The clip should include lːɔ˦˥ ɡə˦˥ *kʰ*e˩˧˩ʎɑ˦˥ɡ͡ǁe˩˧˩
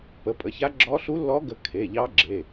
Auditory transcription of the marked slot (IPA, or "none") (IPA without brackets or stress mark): kʰ